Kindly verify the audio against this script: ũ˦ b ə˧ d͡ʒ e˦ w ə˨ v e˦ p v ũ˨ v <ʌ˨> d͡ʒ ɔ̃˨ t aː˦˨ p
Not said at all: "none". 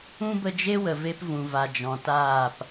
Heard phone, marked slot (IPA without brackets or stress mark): a˨